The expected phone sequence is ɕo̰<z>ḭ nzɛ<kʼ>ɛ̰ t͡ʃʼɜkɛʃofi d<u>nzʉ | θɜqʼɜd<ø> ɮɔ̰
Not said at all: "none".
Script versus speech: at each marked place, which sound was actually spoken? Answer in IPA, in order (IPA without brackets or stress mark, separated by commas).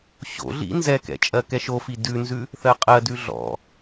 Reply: ɮ, k, ʉ, ʉ